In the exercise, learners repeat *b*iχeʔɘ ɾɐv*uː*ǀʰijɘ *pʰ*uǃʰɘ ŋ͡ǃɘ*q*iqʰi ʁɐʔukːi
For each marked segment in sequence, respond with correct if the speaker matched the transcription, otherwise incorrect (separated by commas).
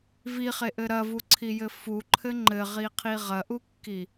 incorrect, incorrect, incorrect, incorrect